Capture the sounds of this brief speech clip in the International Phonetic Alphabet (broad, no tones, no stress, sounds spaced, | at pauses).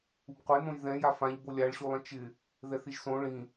u b qʷ e n õ j ð ɛ̃ j a f ã ʎ b o lʲ a ɭ ɕ u lˠ ẽ t͡ʃ ɪ | ð ɛ θ i ʒ s õ ɭ ĩ